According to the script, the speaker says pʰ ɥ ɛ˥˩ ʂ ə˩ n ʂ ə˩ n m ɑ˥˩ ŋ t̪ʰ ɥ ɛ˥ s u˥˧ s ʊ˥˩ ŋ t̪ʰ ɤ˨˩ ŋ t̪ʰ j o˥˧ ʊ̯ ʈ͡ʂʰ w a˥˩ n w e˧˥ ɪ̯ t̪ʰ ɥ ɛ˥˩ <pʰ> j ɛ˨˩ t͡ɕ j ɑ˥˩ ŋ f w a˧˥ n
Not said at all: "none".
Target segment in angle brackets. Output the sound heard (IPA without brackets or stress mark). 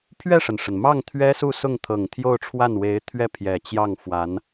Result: pʰ